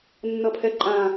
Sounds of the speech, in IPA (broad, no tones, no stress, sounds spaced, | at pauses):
nː ʌ pʰ ɛ ǃʼ ãː